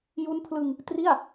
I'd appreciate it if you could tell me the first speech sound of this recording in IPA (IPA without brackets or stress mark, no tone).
j